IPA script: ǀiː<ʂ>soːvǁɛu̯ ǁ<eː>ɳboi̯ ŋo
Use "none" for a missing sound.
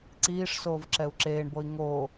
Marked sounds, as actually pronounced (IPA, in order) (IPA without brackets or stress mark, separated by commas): ʂ, eː